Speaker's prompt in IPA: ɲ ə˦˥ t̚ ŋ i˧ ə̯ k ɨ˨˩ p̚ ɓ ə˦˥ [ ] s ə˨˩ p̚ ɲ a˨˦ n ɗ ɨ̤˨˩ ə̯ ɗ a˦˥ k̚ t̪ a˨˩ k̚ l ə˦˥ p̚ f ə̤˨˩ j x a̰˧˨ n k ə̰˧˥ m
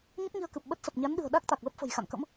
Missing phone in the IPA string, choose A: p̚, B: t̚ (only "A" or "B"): B